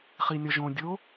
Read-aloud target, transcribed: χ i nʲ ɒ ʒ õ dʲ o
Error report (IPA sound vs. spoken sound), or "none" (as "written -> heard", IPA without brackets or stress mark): none